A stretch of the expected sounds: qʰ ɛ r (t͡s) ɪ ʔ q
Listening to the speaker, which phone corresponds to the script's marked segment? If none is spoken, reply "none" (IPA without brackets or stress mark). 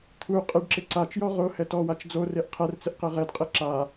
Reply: t͡s